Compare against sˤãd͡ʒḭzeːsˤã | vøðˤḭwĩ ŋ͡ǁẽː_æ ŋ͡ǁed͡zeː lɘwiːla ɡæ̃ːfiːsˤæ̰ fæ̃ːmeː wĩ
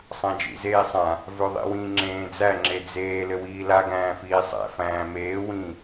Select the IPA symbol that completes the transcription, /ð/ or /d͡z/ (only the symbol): d͡z